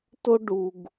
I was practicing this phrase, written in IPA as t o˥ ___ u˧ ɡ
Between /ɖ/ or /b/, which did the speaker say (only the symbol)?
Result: ɖ